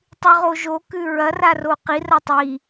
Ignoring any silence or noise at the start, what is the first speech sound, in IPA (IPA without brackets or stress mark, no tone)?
tˤ